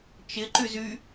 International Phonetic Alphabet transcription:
t͡ʃ ɪ ǃ y z y

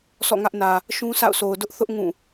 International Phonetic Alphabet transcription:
s ɔ̰˦˨ ŋ ä˦ ʔ n ä˨ | ʃ ũ˦ s a̰˦˨ ʊ̯ s o˨ ʊ̯ d ʊ˦ ʔ θ ʊ˦ ʔ ŋ ũ˦˨

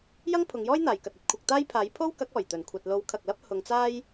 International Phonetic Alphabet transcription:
j ɐ˥ ŋ pʰ ʊ˨˧ ŋ j ɔː˥ j n̪ aː˨ j k ɐ˨ t̚ ɐ˨˥ t̚ kʷʰ ɐ˧ k̚ t̪ aː˥ j pʰ aː˨˥ j pʰ o˥ w k ɐ˨˥ k̚ ɔː˨˩ j t̪ ɵ˨˩ n kʷʰ ɐ˨ t̚ l o˨˥ w kʰ ɐ˨ k̚ l ɐ˥ p̚ h ʊ˨˧ ŋ t͡s aː˥ j

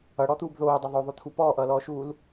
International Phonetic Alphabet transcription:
ʌ ɽ ɔ t̪ uː b ð oː dˤ ɵ ðˤ ɵ ðˤ o t̪ʰ u p ɔː ʔ ʌː l ɔː ʃ uː l

